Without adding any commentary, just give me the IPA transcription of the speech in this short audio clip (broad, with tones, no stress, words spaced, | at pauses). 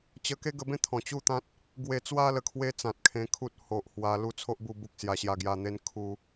t͡ɕə˧ke˦ɡə˧bẽ˥˧ t̪ʰɔ̃˨˩t͡ɕu˥˧t̪ã˦t̚ | ɡwe˨˩t͡swa˧ lə˧kʰwe˦ t͡sã˨t̚kʰẽ˧kʰu˦t̚ ho˨ʔhwa˧ lu˥˧t͡sʰo˦ʔbu˧ bu˦k̚sja˧ ɕja˧ɡja˧n̪e˦n kʰu˦